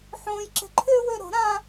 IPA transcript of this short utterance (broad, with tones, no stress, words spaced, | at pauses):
ħõː˥jǁe̤˥ ǃʰʏ˥ wʏ˥ ɾo̤˨˥ɾã˥